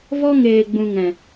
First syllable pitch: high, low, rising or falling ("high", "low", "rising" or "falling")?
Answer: high